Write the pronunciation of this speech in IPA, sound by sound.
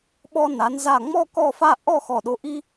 ɓ ɔ˧ n a˩˧ n z a˧˩ ŋ͡m ɔ˥˧ k ɔ˥˧ f a˥˧ ʔ ɔ˥˧ x ɔ˧˩ ɗ o˧ ʔ i˥

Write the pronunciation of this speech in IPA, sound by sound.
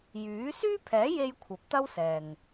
j yː˨˥ s yː˥ pʰ ɛː˨˥ j e˧ j kʷʰ ɐ˨˥ p̚ t̪ ɐ˥ w s ɛː˨ ŋ

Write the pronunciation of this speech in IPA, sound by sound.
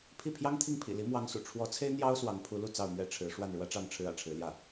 pʰ i˥˩ pʰ j ɑ˥ ŋ t̪ʰ i˥˩ ŋ pʰ ḭ˨˩ l i˧˥ m w ɑ˧˥ ŋ s ṵ˨˩ ʈ͡ʂʰ w ɔ˧˥ t͡sʰ e˥ ɪ̯ n̪ j ɑ˥ ʊ̯ s w ɑ˧˥ ŋ pʰ u˧˥ l u˥˧ t͡s ɑ˥˧ ʊ̯ m ɥ ɛ˥˩ ʈ͡ʂʰ ɻ̩˧˥ ʂ w a˥˩ n ɻ w ä˥ ʈ͡ʂ ɑ˥˩ ŋ ʈ͡ʂʰ ɻ̩˥ ä̰˨˩ ʈ͡ʂʰ ɻ̩˧˥ l j ä˥˩

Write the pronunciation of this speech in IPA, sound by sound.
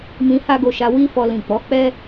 m ĩ˧ h a˦ ɡ o˧ ʃ a˧ w i˦ f ɔ˧ l ĩ˨ k͡p ɔ˨˦ k͡p ɛ˦

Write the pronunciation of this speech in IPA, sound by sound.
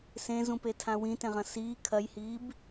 s ẽ z ũ p e tʰ ã w ĩ t ẽ ʁ ɐ̃ s iː kʰ ɐ j h iː b

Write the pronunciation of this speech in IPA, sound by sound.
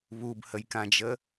β u b h ə j k ã d͡ʒ ə

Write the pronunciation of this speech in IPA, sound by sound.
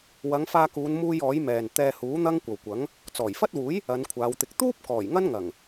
w ɐ˨˧ ŋ f aː˧ k uː˨˧ n m uː˧ j ɔː˨˥ j m ɛː˨ n t̪ ɛː˧ h uː˨˥ n̪ ɐ˥ ŋ kʷ ɐ˨ w kʷ ɐ˨˥ ŋ | t͡s ɔː˨˩ j f ɐ˥ t̚ w uː˨˥ j | ɐ˨˧ n kʷʰ aː˨˧ w t̪ ɪ˧ k̚ t̪ uː˥ p̚ k ɔː˨˩ j ŋ ɐ˥ n ŋ ɐ˨˩ ŋ

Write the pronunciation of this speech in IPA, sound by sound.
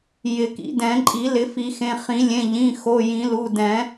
j ɪ˨˩˦ k ḭ˨˩˦ d ɛ̃˨˩˦ ǃʼ i˨˩˦ l ɪ˨˩˦ f i˨˩˦ x ẽ˩˧˩ χ ĩ˨˩˦ lʲ ẽ˩˧˩ ʎ ĩ˩˧˩ x o˩˧˩ j ĩ˨˩˦ l u˩˧˩ d ɛ̃˨˩˦

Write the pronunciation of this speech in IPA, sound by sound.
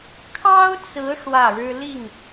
kʰ ɑ˥ ʊ̯ t͡s ɹ̩˧˥ ʂ w ä˥˩ ɻ ɻ̩˥ l i˥˩ ŋ

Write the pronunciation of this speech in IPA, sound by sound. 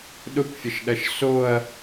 ɗ ʊ kʷ fʲ ə ʃ ɗ ɐ ʃ s o ɐ̯

